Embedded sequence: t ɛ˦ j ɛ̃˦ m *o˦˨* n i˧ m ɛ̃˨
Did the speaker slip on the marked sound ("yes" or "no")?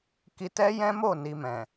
no